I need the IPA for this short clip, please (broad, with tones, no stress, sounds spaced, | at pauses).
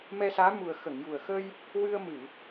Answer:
m ɛ˧ s aː˧˥ m u˨˩ ə̯ x ə˨˩˨ ŋ j u˨˩ ə̯ x ə˧ j | w ɨ˧ ə̯ m ɨ˨˩˨